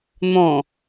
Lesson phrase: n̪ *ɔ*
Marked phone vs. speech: incorrect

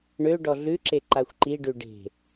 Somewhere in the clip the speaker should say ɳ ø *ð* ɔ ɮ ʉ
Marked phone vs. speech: incorrect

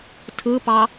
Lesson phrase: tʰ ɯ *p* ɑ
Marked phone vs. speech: correct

